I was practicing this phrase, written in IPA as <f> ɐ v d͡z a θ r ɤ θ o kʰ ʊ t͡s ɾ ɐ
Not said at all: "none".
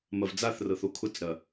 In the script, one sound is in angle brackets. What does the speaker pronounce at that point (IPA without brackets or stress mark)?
m